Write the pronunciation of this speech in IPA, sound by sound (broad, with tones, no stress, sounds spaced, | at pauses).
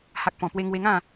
h a˨ k̚ p ɔ̃˨˩ p w e˧ ŋ w e˧ ŋ ã˥˧